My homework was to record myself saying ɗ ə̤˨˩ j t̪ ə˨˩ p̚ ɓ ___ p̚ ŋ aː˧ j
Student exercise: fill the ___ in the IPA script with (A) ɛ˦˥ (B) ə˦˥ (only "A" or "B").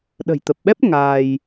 A